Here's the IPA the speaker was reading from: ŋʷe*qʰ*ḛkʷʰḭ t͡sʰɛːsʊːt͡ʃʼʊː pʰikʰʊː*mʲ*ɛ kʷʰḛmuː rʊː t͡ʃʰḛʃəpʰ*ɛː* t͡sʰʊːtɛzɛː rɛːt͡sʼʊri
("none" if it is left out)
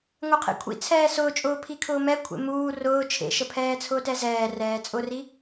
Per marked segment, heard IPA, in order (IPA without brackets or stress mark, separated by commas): qʰ, m, ɛː